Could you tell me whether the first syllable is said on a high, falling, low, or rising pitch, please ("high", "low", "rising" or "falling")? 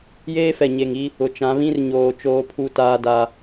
high